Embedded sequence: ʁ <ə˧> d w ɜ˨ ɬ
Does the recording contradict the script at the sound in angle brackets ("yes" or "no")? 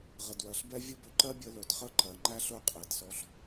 yes